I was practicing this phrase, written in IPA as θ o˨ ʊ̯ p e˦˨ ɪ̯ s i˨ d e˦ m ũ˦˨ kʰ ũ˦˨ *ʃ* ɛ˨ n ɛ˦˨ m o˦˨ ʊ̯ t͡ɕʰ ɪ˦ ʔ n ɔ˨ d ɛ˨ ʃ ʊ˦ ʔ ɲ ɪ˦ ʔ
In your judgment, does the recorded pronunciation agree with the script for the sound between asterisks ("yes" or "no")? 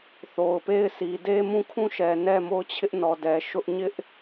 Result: yes